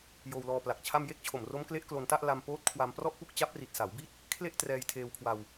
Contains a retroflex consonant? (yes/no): no